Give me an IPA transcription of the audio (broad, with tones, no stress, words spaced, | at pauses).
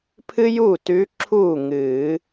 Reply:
pʰɨ˥juː˥˩t ʉ˧˥ǁʰuː˥˩ŋɨː˨˩˦